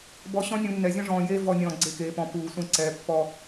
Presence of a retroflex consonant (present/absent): present